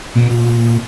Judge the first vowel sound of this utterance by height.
high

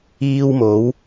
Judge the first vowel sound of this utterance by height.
high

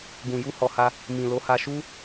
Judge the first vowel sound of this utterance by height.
high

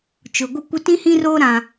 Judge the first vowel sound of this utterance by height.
high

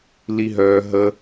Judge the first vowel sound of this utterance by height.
high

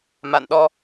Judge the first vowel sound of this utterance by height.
low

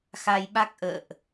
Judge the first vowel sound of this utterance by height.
low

